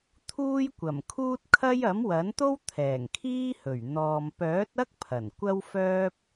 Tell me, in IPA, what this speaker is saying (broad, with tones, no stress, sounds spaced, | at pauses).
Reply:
t̪ʰ uː˥ j kʷ ɐ˨˩ m kʰ uː˥ t̚ kʰ ɐ˥ j ɐ˨˥ m w ɐ˨˥ n t̪ o˥ w t̪ʰ ɛː˨˩ ŋ kʰ iː˥ h ɵ˨˩ ɥ n̪ ɔː˨ m p œː˨˥ t̚ ɐ˥ k̚ pʰ ɐ˨˩ n kʷ ɐ˥ w f œː˥ p̚